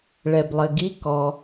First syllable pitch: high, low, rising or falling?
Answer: low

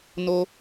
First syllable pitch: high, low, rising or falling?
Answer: high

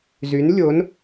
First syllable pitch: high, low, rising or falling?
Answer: rising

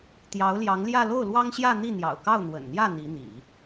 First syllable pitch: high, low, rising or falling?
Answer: rising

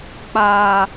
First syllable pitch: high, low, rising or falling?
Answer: low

